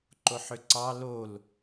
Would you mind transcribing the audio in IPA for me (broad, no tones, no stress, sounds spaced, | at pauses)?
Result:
ǃ o ħ ʏ ǀ ɑ l o l